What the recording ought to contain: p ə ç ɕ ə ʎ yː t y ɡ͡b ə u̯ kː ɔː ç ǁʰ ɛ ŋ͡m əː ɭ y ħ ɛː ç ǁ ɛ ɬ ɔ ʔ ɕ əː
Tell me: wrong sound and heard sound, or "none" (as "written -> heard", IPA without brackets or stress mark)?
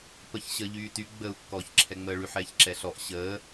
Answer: none